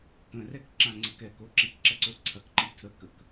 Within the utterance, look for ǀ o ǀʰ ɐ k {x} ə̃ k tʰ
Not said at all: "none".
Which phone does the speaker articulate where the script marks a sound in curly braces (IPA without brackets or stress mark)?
ǃ